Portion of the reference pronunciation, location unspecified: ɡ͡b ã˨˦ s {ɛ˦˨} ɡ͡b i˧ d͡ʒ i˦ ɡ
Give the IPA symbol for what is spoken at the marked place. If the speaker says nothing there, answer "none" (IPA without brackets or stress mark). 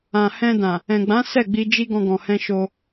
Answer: ɛ˦˨